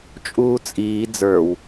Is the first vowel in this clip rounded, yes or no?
yes